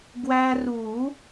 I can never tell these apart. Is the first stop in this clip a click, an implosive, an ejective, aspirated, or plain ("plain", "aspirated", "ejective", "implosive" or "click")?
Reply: plain